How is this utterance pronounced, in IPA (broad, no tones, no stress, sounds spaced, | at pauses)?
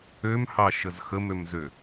ø m h ɑ ʃ ə z x ə m ø m z ø